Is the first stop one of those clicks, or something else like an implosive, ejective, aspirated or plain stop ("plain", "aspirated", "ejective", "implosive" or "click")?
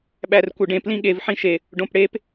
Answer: implosive